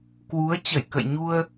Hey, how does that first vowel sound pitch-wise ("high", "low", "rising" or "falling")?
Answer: rising